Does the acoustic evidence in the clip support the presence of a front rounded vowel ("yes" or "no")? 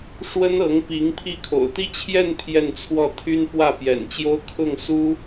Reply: yes